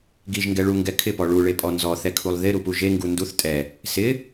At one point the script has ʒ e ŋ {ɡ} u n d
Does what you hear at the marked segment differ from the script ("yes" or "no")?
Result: no